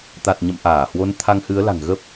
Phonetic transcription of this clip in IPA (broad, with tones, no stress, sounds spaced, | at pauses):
t̪ a˨˩ t̚ ɲ ə̰˧˨ m ʔ aː˧˩ h w o˨˦ n t̪ʰ a˧ ŋ h ɨ˨˦ ə̯ l a̤˨˩ ŋ ɣ ə˦˥ p̚